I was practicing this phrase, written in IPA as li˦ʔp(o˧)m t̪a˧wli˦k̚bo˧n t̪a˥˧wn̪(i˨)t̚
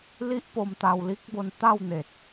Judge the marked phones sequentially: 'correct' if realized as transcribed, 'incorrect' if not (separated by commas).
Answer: correct, incorrect